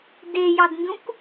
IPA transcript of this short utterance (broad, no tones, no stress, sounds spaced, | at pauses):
d e j ɑ d n d ũ k